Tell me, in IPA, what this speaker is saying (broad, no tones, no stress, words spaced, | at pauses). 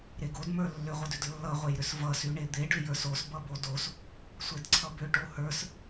ɾeɡodmə˞ lːʏʁʷʌdʏd lːʌʁʷejɾʏs vʌsyɳe d̪eɖʏ jə˞sosbʌbo dos | sʷedǀʰʌbʏ ʈohə˞s